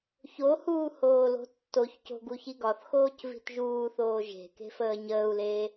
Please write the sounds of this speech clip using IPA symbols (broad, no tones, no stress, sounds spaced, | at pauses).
ç o h uː h oː l o̤ tː o ç c o̤ ɡ u ç i ɡ ɒ θ x oː c v i̤ t ʒ uː θ oː ʒ e̤ k e̤ f əː ɲ əː u̯ l eː